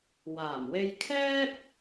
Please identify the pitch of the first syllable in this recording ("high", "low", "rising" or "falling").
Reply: low